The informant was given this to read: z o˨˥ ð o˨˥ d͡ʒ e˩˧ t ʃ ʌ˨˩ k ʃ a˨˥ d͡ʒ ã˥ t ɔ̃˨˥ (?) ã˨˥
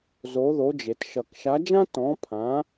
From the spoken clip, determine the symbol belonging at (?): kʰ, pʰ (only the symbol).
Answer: pʰ